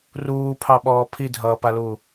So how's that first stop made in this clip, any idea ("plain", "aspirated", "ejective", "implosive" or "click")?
aspirated